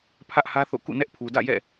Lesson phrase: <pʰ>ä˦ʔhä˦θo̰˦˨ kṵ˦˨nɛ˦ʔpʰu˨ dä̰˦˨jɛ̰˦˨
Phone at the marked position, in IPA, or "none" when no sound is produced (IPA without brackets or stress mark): pʰ